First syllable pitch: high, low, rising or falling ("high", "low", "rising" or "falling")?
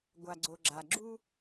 low